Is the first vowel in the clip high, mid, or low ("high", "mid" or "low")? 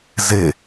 mid